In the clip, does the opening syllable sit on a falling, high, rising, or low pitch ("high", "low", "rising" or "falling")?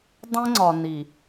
high